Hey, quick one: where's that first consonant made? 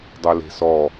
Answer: tongue tip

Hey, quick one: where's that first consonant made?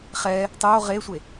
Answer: uvula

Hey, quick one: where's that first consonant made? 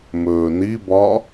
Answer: lips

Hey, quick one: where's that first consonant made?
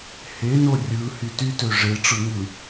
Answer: throat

